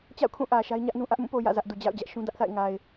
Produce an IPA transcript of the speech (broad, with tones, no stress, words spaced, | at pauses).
t͡ɕa̰˦˨ʊ̯kʰũ˦˨ʔä˨ ʃa˦ɪ̯ɲä˦ʔnũ˦ʔä˦ʔ mũ˦˨po˨ jä̰˦˨zä˦ʔdu˨ d͡ʑa̰˦˨ʊ̯d͡ʑä˦ʔʃũ˦ dä˦ʔθa̰˦˨ɪ̯ŋa˨ɪ̯